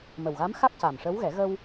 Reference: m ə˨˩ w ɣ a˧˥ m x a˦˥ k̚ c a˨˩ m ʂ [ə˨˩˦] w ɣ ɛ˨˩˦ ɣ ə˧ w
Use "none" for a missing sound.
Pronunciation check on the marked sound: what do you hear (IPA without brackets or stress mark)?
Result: ə˧˥